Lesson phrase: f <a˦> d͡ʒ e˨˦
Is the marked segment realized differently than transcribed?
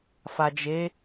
yes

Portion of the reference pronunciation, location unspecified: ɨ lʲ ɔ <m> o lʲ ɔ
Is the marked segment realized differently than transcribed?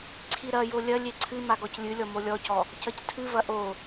no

